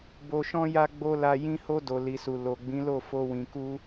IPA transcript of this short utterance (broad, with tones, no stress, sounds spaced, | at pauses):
b o˨ ʃ ɔ̃˧ j a˧ ɡ͡b o˦ l a˧ j ĩ˦ h o˧ d o˨ l i˨ s u˨ l o˨ ɡ͡b ĩ˨˦ l o˦˨ f o˧ w ĩ˨ k u˧